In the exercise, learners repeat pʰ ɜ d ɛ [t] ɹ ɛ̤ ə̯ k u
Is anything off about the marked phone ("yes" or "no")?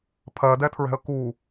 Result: yes